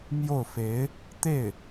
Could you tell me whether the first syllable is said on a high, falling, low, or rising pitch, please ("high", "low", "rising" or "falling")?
falling